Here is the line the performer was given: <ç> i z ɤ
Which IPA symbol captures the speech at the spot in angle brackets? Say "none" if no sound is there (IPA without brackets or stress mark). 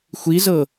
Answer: xʷ